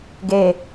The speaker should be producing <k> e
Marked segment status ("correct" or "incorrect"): incorrect